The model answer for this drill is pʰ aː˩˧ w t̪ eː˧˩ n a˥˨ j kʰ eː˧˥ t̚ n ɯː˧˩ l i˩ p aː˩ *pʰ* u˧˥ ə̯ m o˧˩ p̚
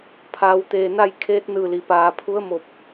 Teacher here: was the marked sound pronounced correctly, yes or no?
yes